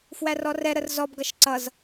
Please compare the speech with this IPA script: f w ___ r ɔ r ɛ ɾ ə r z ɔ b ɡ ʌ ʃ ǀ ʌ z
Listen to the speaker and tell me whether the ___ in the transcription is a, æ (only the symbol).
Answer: æ